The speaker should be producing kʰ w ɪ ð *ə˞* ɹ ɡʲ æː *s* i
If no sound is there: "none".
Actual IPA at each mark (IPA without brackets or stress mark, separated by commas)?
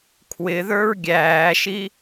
ə˞, ʃ